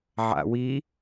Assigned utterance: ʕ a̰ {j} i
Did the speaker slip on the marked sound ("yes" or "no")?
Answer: yes